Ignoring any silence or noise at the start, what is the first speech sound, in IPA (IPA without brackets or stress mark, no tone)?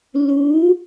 l